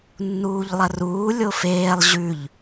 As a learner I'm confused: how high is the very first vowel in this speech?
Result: high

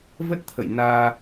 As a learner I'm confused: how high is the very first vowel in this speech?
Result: mid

